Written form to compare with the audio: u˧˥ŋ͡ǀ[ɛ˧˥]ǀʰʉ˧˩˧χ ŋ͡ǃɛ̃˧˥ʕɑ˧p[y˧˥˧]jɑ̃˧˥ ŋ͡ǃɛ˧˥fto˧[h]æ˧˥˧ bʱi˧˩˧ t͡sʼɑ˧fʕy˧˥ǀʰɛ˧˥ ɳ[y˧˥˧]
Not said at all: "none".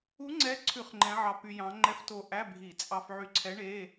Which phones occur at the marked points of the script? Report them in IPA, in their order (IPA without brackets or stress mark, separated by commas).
ɛ˧˥, y˧, ʔ, e˧˥˧